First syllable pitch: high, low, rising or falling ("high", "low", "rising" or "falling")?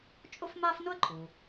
high